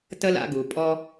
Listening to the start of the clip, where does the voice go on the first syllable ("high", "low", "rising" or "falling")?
high